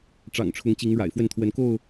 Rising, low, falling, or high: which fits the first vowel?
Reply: low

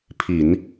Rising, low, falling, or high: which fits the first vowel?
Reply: low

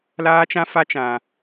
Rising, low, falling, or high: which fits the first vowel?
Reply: high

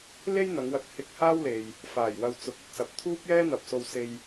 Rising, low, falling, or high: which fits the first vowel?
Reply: high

